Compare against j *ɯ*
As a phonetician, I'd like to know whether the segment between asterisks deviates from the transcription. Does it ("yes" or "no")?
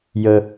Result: yes